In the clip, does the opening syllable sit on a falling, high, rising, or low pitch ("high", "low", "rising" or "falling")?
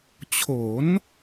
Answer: rising